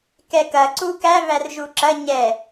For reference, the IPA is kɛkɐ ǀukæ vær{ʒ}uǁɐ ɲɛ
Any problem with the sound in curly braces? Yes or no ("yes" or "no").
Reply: no